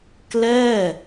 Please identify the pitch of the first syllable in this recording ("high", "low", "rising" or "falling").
falling